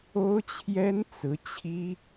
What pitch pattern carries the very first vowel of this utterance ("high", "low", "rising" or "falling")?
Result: high